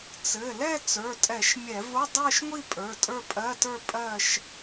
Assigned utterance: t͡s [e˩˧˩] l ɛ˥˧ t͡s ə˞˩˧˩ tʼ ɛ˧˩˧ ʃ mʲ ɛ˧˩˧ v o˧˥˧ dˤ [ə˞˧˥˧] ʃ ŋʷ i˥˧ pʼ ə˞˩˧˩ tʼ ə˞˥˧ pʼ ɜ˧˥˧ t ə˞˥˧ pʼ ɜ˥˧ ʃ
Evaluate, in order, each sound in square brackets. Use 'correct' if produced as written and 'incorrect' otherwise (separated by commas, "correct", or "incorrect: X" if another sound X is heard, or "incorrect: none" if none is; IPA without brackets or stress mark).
incorrect: ɘ˩˧˩, incorrect: ə˞˥˧